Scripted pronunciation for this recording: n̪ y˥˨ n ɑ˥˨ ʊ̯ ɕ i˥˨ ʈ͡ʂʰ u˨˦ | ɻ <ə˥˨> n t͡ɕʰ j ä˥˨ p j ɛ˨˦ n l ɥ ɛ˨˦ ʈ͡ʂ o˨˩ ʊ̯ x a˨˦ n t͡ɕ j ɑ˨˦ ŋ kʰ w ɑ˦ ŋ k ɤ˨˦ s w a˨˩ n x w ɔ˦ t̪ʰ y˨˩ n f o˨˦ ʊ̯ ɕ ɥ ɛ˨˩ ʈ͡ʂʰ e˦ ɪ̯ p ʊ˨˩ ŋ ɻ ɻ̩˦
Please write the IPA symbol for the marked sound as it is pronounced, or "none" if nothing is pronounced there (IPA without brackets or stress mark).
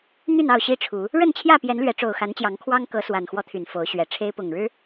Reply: ə˥˨